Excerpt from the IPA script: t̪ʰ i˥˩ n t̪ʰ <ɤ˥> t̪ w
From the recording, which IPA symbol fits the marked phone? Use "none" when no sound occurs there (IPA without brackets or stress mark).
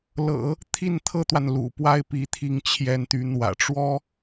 ɤ˥